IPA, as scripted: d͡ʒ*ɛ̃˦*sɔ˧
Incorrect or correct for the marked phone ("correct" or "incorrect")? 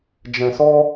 incorrect